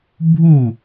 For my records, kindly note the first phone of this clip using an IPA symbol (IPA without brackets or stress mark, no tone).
bʱ